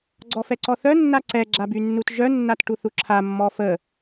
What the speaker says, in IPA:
ɡ͡ǀ ɔ f ɛ ǀ ɔ θ œ nː a ǀ ɛ ɡ͡ǁ a b y nː u t ʒ œ nː a t ʈ u θ u ǁʰ a mː ɔ f ə

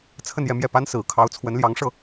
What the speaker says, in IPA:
t͡sʰ ə˥˧ n j ɛ˥˧ m j ɛ˥˩ p a˥ n s ɹ̩˨˩ kʰ ɑ˧˥ ʊ̯ t͡sʰ w ə˧˥ n l j ɑ˧˥ ŋ ʂ ɤ˥˩

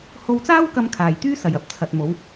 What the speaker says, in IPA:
h o˧ w t͡s aː˥ w k ɐ˧ m kʰ aː˨ j t̪ yː˥ s ɐ˨ j ɐ˧ p̚ t͡sʰ ɐ˨ t̚ m o˨˧ w

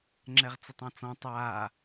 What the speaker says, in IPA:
ŋ͡ǁ ɛ ʁ t͡s e tˤ ɔ̃ t͡s ɔ̃ tˤ aː

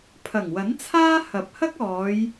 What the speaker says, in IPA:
pʰ ɐ˨˩ ŋ w ɐ˨˥ n t͡sʰ aː˥ h ɐ˨˥ p̚ h ɐ˥ k̚ ɔː˨˧ j

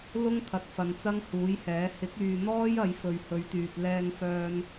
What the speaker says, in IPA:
l ʊ˥ ŋ t̪ʰ ɐ˨ t̚ f ɐ˨ n t͡s ɐ˥ ŋ h uː˨˥ j h ɛː˨˥ h ɪ˨˥ k̚ yː˨ n̪ ɔː˥ j ɐ˨˧ j f ɵ˨ ɥ h ɵ˨˧ ɥ t̪ yː˨ t̚ l ɛː˧ ŋ f œː˧ n

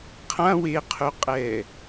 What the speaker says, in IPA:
qʰ ã w e qʰ u qʼ ɛ

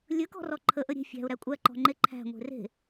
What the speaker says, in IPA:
lʲ ɵ k ɔ̤ r ɔ ǃʰ ə ʔ ə ɾʲ e̤ fʲ æ̤ ʊ̯ ɾ æ kʷʼ æ ǃ ɔ̤ ŋ͡ǃ e ǃʰ æ̤ ŋʷ e̤ r e̤

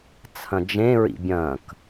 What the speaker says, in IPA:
t͡sʰ ɐ̃ d͡ʒ ẽ ɹ ḭ bʲ ɐ̃ k

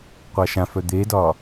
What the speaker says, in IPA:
qʷ a ʃ ã f œ d̪ e d ɒ

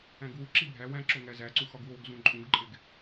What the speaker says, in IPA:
æ̃ ɡ w u ǁ i bʱ æ w æ̃ ǁ o ŋ æ z æ ǀ u x ɒ ɡ w o ɡ z ũ ǃʼ ũ ɡ ǃʼ e ɡ

